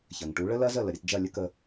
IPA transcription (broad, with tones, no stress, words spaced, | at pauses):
çɐ˩ŋʈu˩˥ ɭə˥lɐ˥zə˥˩ lə˩ɾʲɐ˧td͡ʒɐ˥˩ lʲə˥kə˧